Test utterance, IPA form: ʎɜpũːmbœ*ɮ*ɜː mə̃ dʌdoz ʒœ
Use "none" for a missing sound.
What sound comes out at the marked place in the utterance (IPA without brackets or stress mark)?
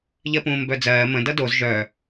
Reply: d͡z